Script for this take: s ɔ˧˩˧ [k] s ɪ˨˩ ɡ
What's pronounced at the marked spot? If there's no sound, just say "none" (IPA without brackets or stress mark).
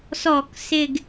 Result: k